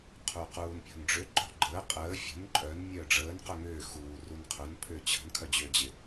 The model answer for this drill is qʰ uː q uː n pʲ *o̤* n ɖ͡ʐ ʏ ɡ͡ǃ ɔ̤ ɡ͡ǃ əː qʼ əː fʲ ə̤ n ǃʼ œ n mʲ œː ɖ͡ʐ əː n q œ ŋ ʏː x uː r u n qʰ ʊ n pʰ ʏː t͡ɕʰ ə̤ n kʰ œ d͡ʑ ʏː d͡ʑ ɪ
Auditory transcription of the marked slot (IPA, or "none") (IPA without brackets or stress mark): ɔ̤